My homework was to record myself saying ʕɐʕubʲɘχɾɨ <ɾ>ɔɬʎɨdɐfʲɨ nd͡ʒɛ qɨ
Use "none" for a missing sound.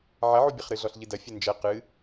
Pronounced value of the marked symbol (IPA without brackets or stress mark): ɮ